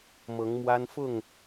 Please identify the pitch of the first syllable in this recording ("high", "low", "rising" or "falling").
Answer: rising